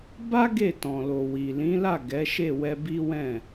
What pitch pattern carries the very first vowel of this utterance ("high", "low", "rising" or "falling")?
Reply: high